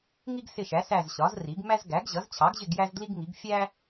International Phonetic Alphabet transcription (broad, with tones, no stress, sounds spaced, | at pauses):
ŋ i˥ ɡ s ɪ˦˨ ʃ æ˩˥ s æ˦˨ z ɕ ɒ˩˥ z r i˩˥ ɡ m æ˥ z ɡ æ˩˥ ɡ ʑ ʌ˩˥ z t͡ɕʰ ɑ˩˥ ɡ ʑ ɪ˦˨ ɡ j æ˥ z d l i˥ ɡ ŋ i˩˥ ɡ fʲ æ˥